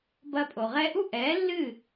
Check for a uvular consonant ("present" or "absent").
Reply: present